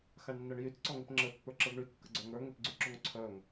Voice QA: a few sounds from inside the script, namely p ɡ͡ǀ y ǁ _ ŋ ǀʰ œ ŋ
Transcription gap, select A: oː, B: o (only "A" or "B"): B